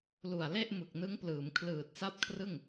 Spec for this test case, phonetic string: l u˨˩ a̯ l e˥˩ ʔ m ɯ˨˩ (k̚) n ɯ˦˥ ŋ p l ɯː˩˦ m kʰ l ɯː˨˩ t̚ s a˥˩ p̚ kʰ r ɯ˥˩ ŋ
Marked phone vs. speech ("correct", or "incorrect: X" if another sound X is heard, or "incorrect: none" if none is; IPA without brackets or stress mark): correct